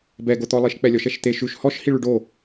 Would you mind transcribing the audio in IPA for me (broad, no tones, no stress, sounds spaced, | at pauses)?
b ɛ ɡ o t̪ ɔ lˠ i ʃ k͡p ɛ lʲ ɔ ʃ ɛ ʃ t̪ e ʃ ʉ ʃ h ɔ ʃ h i ɭ ʉ ɖ o